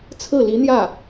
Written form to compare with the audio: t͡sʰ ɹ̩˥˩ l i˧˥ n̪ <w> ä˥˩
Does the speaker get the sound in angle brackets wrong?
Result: yes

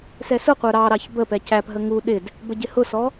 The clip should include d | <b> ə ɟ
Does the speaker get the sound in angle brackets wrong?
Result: no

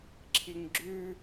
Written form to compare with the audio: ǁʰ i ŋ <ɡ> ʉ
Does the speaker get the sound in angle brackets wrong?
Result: yes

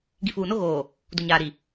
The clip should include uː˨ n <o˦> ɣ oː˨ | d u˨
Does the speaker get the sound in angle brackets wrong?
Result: no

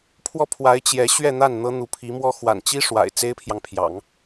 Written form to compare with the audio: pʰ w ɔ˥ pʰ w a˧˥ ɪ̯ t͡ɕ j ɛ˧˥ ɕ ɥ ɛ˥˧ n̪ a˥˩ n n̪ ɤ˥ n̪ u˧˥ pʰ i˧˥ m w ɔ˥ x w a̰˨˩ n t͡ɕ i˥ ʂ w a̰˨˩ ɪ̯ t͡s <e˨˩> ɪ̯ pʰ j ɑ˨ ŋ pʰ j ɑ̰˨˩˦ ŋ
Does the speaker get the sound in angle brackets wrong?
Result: yes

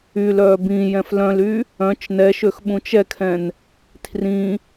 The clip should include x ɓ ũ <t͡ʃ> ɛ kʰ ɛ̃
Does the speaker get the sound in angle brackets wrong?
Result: no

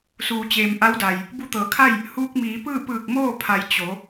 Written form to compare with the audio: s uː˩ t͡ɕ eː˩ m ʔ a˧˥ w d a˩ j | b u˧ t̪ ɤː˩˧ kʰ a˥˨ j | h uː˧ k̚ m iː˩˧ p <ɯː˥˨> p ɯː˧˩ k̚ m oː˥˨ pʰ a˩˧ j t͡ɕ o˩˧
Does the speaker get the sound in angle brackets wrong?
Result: no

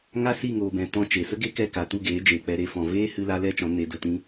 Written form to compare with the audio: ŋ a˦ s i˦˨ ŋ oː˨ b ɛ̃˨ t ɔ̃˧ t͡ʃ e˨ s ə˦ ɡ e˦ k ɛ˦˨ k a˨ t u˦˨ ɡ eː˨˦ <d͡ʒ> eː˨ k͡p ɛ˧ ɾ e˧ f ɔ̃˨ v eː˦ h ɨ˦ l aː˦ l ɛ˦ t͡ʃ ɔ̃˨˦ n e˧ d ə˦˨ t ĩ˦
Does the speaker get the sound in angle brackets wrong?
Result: no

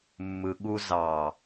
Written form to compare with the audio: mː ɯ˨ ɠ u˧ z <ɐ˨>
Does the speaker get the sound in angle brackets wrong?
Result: yes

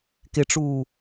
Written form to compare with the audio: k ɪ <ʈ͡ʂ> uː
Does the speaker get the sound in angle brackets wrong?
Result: no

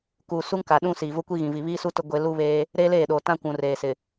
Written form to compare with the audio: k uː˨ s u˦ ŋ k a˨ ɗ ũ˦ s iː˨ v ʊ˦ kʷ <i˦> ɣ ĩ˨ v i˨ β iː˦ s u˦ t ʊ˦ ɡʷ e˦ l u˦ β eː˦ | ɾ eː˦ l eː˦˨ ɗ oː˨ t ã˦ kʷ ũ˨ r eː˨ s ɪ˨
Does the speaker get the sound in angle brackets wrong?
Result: no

